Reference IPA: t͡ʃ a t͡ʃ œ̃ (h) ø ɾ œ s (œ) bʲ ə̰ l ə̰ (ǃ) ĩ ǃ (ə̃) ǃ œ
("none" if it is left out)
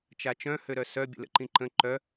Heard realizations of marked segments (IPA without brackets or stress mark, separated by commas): h, œ, ǃ, ə̃